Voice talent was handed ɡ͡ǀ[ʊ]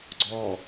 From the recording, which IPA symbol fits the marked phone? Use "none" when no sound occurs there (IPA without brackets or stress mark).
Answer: ɔ